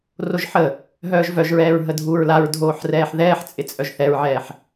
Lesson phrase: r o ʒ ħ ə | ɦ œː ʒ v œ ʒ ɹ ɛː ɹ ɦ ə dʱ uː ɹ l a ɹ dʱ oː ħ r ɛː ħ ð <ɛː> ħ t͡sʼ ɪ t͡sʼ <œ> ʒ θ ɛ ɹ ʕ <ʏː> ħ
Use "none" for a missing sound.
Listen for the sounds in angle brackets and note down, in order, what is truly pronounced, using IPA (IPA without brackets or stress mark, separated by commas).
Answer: ɛː, œ, ɛː